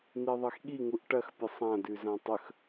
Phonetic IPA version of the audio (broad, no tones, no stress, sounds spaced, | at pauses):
n̪ i ðˤ e x ɠ i ŋ u ʔ ʈ ɐ x pʲ ə sˤ ã d ʉ z ã tˤ ə x